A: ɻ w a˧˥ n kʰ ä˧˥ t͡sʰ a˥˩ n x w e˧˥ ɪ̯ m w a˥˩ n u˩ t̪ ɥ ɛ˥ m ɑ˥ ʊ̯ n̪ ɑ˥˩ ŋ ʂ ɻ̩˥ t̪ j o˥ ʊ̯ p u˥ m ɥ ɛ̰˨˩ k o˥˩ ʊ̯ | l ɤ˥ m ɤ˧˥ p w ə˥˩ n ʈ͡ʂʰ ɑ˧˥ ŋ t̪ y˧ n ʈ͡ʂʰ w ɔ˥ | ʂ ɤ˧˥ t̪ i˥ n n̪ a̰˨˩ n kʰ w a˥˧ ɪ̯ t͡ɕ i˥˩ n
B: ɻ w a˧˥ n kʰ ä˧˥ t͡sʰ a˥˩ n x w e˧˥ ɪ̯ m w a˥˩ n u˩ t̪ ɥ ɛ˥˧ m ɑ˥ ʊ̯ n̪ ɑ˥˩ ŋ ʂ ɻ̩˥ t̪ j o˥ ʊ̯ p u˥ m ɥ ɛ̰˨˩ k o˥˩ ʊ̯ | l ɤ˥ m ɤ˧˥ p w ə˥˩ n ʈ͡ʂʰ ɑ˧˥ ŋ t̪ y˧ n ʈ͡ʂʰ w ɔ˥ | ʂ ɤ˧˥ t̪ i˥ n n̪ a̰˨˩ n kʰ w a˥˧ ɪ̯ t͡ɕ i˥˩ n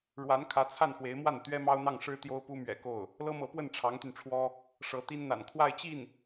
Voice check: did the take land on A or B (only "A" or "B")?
A